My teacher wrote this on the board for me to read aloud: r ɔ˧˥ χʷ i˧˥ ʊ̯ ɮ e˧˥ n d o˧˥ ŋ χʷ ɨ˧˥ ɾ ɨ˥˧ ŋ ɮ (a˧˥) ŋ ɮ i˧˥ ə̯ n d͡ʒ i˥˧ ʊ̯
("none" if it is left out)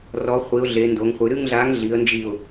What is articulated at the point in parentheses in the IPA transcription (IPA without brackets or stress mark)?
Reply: a˧˥